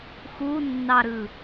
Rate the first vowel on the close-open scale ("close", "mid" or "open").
close